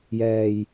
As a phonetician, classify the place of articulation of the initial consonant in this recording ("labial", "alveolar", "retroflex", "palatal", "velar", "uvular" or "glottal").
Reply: palatal